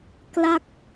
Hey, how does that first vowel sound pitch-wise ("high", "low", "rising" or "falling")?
falling